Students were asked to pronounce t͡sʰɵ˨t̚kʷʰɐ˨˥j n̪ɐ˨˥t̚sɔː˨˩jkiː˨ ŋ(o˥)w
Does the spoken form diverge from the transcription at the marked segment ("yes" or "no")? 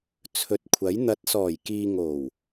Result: yes